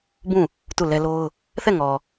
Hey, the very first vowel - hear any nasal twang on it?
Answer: yes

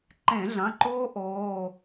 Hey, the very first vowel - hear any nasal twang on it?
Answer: yes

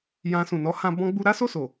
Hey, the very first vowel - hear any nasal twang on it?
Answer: yes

